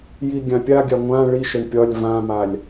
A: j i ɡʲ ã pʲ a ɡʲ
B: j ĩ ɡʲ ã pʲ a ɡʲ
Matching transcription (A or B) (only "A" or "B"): A